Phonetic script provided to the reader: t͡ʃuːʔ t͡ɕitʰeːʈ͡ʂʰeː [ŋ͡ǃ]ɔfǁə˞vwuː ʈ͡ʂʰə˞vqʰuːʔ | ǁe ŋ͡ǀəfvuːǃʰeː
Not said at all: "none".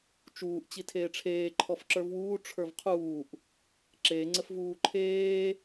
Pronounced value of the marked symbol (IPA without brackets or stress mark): ǃʰ